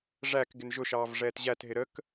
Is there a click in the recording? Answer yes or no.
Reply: no